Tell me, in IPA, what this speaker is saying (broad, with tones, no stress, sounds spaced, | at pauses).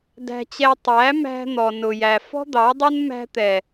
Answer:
d æ̤˧ t͡ɕ ɛ˧ tˤ æ˨˦ m æ̤˧ n̪ ɔ˨ n ʊ˨ j æ˨ f ɔ̤˦ d̪ ɑ˨˦ dˤ ʊ˦ n m æ̤˧ t̪ ɛ˨